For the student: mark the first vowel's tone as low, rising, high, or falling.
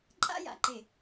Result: high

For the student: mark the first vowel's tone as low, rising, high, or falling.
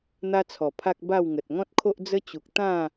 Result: high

